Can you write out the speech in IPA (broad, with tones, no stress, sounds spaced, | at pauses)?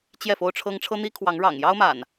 t͡ɕ j ɛ˥˨ f o˦ ʊ̯ ʈ͡ʂʰ ɤ˦ ŋ ʈ͡ʂʰ ɤ˦ n̪ i˦ kʰ w ɑ˨˦ ŋ ɻ ɑ̰˨˩ ŋ j ɑ˦ ʊ̯ m a̰˨˩ n